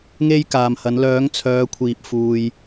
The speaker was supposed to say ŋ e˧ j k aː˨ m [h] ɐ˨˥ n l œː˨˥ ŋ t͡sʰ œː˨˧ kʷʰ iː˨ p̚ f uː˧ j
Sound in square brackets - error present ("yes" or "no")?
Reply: no